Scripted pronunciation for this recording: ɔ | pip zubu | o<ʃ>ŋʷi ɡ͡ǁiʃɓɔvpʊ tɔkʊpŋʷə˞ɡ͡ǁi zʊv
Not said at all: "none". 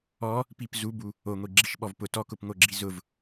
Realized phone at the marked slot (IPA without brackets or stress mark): none